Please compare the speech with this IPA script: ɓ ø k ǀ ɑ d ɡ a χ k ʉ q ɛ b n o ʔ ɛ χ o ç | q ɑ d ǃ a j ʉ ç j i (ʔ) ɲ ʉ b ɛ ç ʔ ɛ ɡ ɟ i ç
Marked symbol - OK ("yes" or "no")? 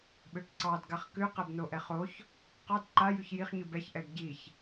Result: no